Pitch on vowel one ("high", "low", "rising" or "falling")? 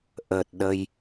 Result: low